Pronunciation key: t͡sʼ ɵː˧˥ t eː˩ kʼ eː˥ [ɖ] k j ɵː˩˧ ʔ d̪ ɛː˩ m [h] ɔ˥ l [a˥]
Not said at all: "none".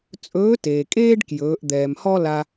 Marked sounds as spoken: ɖ, h, a˧

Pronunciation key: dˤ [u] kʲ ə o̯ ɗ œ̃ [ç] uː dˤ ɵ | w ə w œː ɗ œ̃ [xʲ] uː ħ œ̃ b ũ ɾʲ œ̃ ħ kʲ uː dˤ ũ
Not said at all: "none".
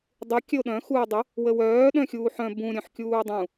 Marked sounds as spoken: u, x, xʲ

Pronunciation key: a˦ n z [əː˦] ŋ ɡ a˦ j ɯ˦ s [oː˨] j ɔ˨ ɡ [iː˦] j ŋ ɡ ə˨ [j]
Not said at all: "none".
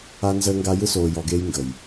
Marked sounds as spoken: əː˦, oː˨, eː˦, j

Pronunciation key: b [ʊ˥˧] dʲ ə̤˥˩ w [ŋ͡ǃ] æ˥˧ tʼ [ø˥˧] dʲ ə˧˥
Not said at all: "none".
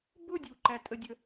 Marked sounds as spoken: ʊ˥˧, ǃ, ə˥˧

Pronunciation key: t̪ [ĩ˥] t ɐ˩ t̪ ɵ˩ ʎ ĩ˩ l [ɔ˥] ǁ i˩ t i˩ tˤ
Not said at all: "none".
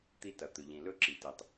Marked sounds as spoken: i˥, ɵ˥

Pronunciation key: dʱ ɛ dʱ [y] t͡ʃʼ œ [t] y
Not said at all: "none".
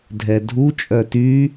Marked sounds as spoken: u, t

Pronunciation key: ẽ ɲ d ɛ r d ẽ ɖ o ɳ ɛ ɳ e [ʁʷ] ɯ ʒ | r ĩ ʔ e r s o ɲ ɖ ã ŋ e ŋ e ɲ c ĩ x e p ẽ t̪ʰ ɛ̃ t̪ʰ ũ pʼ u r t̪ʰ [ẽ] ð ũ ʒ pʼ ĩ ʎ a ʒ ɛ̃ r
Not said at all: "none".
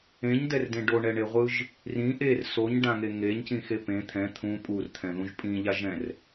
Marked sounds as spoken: ʁʷ, ɛ̃

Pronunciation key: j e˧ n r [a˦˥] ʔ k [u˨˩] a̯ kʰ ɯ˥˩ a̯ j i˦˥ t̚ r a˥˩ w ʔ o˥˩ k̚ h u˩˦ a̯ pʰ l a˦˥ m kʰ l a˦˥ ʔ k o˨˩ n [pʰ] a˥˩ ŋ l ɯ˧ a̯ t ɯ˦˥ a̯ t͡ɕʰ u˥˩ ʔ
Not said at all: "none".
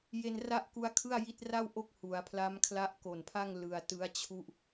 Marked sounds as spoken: a˥˩, u˦˥, pʰ

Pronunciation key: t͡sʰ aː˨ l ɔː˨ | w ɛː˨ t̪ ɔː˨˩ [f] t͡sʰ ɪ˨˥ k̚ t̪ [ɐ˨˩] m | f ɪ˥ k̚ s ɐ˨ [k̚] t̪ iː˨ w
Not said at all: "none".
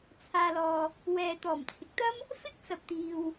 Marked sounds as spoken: m, ɐ˥, p̚

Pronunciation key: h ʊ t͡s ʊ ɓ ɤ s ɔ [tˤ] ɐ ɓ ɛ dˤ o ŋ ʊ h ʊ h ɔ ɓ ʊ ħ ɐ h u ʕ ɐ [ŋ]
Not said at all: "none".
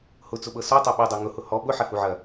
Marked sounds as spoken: tˤ, none

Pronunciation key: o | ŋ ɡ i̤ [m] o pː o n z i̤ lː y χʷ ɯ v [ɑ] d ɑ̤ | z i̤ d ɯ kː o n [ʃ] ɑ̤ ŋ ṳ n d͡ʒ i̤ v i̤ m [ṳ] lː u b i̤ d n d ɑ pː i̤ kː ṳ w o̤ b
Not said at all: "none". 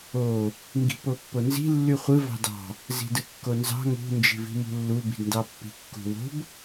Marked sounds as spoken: p, ɑ̤, z, ṳ

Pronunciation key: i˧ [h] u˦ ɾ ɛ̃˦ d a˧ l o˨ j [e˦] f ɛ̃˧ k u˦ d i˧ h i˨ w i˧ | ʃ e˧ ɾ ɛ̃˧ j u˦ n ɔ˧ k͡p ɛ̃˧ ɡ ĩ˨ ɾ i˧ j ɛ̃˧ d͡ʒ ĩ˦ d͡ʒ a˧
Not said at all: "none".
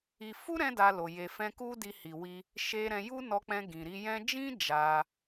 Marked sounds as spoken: f, e˨

